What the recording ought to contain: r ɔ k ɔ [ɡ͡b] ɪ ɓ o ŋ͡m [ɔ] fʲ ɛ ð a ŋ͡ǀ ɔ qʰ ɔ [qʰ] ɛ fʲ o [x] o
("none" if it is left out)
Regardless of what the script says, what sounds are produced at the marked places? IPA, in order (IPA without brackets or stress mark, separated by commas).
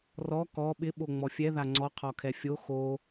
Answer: ɓ, ɔ, kʰ, x